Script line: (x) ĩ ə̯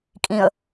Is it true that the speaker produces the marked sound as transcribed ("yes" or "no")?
no